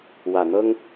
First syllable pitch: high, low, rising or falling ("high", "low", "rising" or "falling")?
low